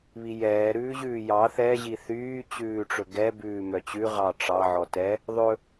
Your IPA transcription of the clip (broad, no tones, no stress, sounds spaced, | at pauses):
β i j ɛː ɾ ʉː ʑ ʉː j ɑ θ ɛ ʑ i θ yː t͡ɕ ʉː ʈ͡ʂ ɵ ɡ ɛ b ʉː m œ t͡ɕ ʉ ʁ ɑ ʈ͡ʂ ɑ ʕ ɔ t ɛ | ðˤ ɵ